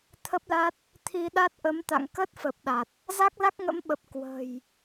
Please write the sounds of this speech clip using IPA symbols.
t̪ʰ ə˦˥ p̚ l a˦˥ t̚ | t̪ʰ i˧ ɗ a˦˥ t̚ ʔ ə˨˦ m t̪ a̰˧˨ ŋ k ə˦˥ t̚ f ə˨˩ p̚ ɗ a˨˩ t̚ | z a˦˥ k̚ l a˦˥ k̚ ŋ ə̰˧˥ m ɓ ə˨˩ p̚ k w ə̤ː˨˩ j

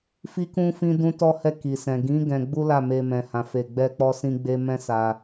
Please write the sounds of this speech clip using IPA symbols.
f i˦ k ũ˦ f ĩ˦ d ũ˦ t ɔ˦ h ɛ˦˨ k i˨ s ɛ̃˨ ɡ ĩ˨˦ ɡ ɛ̃˧ ɡ͡b u˦ l a˦˨ m e˧ m ɛ̃˧ h ã˧ f e˧ ɡ͡b ɛ˦ k͡p ɔ˦ s ĩ˦ ɡ͡b e˦ m ɛ̃˦ s a˧

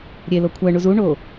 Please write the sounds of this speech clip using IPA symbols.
ɾʲ e l o kʷʰ æ ɳ u z u ɳ o

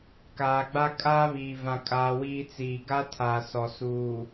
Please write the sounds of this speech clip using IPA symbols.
k aː˨ ɡ͡b a˦ kʼ aː˦ β iː˨ v ã˨ kʼ aː˨ w iː˦ t͡s iː˨ ɡ a˦ tʰ aː˨ s ɔ˨ s uː˨

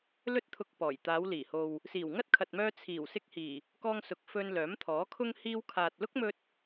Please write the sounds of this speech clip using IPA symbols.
l ɵ˧ t̚ t̪ʰ ʊ˨ k̚ p ɔː˨˩ j t̪ aː˨˧ w l iː˨˩ h o˨ w | s iː˨˩ w ŋ ɐ˥ t̚ kʰ ɐ˨ t̚ m œː˧ t͡sʰ iː˨˩ w s ɪ˧ k̚ h iː˨˩ | k ɔː˧ ŋ s ʊ˨ k̚ f ɵ˧ n l œː˨˥ m t̪ʰ ɔː˨˥ kʰ ʊ˥ ŋ h iː˧ w kʰ aː˨ t̚ l ʊ˥ k̚ m ɵ˧ t̚

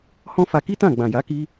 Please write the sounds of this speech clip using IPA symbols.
h ɔ̃˦ f a˧ k i˦ t ã˦˨ ɡ͡b ã˨ j a˨˦ k i˦

